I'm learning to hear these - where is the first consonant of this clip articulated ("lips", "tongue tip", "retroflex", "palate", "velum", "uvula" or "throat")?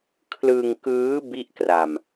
velum